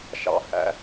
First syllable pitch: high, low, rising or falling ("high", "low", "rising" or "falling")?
low